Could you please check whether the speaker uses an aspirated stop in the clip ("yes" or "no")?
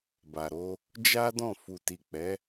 no